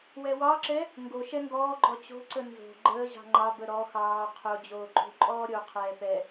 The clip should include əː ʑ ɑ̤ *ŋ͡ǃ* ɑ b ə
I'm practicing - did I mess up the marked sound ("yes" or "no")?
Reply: no